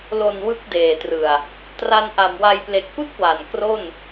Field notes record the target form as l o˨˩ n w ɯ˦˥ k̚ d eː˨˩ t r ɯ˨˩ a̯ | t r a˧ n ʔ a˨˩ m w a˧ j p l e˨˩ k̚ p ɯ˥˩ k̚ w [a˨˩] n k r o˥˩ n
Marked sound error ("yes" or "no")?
no